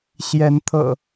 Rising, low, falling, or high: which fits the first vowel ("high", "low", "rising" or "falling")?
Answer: rising